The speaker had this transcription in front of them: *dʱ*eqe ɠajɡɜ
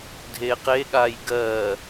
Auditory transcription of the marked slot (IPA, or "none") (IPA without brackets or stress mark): dʱ